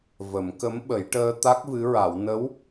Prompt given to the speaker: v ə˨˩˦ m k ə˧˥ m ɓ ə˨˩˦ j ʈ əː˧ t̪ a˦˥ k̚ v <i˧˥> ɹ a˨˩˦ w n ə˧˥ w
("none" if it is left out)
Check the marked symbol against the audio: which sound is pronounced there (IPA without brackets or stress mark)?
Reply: ɨ˧˥